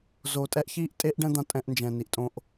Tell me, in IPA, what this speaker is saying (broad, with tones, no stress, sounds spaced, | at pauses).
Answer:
z oː˨ tʼ ɛ˦ ʔ ç iː˦ ʔ tʼ e˦ ʔ ɖ ɛ̃˦ d̪ ã˧ tʼ ɛ̃˧ ʔ n d͡ʒ ɛ̃˨ n i˨ ʔ tʼ õ˧ ʔ